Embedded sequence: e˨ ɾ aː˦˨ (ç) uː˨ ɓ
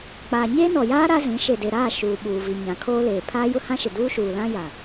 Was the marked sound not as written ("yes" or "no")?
yes